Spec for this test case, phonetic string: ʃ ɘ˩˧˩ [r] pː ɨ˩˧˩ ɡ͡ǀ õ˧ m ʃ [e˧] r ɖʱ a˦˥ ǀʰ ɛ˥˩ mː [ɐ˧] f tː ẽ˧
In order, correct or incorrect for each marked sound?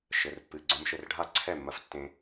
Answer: correct, incorrect: ɘ˧, correct

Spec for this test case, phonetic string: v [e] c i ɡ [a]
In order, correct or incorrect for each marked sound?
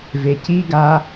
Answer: correct, correct

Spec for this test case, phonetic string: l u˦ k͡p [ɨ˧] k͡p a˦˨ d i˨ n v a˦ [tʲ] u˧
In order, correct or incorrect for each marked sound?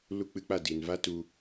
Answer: correct, incorrect: t

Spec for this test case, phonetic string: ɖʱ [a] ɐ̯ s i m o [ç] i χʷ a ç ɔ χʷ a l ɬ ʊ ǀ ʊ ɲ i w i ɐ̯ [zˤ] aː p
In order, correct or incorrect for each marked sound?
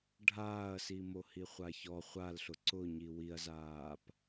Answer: incorrect: aː, incorrect: h, incorrect: z

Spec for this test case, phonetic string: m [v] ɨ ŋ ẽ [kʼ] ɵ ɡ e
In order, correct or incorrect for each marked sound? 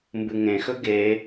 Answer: incorrect: b, incorrect: x

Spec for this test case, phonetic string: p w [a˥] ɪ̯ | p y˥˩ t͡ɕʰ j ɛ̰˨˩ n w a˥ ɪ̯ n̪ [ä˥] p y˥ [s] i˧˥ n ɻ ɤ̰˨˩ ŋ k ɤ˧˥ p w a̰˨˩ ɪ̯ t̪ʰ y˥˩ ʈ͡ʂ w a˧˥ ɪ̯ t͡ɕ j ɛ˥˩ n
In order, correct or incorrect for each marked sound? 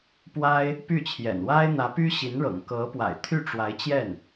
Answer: correct, incorrect: ä˧˥, incorrect: ɕ

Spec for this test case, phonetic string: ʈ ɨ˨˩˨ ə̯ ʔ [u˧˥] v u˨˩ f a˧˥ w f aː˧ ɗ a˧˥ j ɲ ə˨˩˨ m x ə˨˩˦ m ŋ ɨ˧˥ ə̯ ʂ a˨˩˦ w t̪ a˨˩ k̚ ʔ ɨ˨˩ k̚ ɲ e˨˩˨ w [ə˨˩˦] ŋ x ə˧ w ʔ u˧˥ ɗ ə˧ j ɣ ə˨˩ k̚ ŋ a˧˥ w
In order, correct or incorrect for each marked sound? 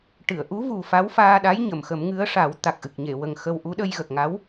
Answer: correct, incorrect: ə˨˩

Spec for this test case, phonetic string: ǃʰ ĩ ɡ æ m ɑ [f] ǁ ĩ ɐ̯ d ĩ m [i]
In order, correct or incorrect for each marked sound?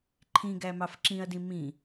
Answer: correct, incorrect: ĩ

